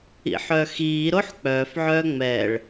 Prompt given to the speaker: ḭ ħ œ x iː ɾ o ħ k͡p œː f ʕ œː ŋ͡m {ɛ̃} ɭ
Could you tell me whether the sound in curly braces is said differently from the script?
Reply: yes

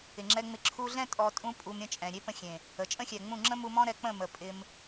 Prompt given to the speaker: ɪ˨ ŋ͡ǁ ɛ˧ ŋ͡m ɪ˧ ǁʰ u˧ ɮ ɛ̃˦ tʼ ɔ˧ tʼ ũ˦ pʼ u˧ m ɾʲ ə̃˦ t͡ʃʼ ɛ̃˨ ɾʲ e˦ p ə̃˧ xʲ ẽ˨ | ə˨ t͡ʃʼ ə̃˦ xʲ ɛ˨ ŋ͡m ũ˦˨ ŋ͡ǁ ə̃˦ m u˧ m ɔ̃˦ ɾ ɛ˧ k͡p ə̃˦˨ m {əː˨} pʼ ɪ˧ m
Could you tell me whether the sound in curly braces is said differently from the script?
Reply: yes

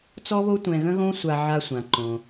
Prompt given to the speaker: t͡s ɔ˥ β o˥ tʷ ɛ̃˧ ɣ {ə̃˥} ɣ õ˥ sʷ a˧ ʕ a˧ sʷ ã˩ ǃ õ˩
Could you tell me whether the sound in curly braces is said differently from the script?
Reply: no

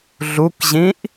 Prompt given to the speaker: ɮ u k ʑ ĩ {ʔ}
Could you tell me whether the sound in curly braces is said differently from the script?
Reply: no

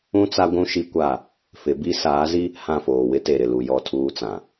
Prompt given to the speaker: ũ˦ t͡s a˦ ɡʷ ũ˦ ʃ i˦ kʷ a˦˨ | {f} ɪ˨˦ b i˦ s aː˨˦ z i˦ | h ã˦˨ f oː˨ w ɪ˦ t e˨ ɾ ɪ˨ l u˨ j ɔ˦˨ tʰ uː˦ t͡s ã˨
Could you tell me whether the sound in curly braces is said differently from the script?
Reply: no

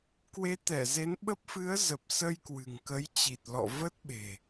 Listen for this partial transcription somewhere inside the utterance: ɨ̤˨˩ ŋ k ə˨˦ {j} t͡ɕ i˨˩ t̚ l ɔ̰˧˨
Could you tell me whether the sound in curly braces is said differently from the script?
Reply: no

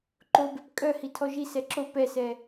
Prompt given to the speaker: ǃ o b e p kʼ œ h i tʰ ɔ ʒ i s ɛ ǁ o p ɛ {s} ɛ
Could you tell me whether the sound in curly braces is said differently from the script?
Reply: no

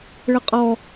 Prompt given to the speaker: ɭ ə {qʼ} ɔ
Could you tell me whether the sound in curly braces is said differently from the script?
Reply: no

